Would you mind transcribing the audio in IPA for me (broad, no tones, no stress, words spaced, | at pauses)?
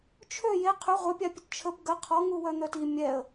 t͡ʃʰø je qʰy ʁʷœpʲapʲət t͡ʃʰəb ɡə qʰɔ ŋuwœn̪œti mʲɛə̯